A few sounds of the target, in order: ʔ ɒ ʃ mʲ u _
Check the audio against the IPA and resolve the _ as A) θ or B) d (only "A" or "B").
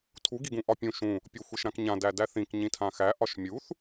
A